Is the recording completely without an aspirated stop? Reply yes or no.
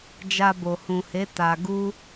yes